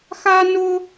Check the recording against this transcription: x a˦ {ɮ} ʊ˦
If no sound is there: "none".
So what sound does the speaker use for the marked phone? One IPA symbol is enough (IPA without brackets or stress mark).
n